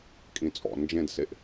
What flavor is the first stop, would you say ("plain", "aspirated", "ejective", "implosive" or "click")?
ejective